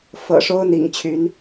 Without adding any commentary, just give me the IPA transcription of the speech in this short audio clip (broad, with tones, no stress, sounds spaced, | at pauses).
f ɤ̰˨˩ ʂ o˦ ʊ̯ n̪ ḭ˨˩ ŋ t͡ɕʰ y˨˦ n